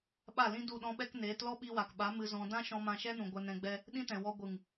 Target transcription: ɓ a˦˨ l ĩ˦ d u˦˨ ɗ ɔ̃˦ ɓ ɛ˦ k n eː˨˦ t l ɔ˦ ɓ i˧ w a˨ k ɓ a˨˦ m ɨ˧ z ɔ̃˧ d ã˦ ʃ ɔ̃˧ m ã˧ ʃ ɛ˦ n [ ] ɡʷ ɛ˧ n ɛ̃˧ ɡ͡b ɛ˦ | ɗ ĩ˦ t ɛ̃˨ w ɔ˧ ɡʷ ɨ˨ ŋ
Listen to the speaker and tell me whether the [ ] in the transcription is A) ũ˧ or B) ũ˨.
B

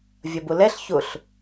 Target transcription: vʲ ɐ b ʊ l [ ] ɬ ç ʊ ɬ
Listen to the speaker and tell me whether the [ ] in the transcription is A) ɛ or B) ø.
A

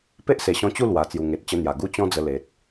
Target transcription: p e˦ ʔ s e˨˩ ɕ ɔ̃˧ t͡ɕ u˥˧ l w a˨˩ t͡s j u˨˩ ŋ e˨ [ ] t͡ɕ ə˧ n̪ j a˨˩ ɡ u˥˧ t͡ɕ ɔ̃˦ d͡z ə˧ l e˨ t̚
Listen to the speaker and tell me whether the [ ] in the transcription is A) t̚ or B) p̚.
A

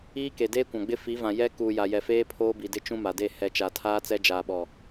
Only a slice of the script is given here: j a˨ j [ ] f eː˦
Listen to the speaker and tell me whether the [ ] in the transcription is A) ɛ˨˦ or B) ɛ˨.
B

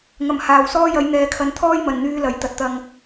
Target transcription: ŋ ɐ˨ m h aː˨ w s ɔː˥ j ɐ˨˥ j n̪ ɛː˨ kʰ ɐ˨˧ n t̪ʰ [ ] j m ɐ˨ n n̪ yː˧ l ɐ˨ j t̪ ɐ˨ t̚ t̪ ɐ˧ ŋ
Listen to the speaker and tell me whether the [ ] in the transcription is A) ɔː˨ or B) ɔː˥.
B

